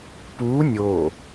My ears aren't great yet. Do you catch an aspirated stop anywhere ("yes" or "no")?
no